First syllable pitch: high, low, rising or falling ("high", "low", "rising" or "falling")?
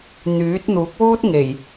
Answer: rising